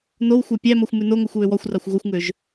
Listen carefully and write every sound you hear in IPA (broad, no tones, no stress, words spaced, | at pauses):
nowxʷɑ pʲæmɔxʷ mʉnoŋoxʷ wøwɔxʷrɑxʷ ɣoxʷŋøʒ